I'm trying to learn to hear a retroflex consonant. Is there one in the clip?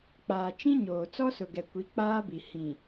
no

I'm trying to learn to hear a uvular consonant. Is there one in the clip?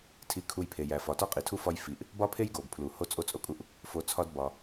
yes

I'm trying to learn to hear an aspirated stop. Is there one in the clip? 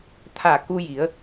yes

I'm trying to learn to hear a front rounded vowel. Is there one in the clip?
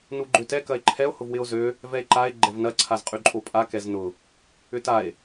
yes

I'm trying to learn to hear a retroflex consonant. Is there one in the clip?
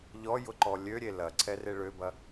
yes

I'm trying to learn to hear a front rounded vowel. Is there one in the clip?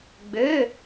yes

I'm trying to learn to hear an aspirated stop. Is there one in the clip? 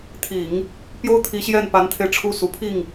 yes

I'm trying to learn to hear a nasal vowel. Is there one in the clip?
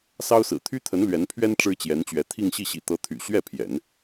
no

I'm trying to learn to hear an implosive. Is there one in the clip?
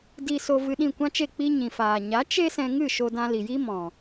yes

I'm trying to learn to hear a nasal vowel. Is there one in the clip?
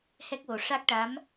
no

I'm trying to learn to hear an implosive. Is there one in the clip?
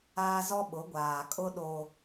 yes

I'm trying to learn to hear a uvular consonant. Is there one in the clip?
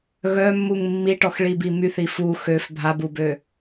no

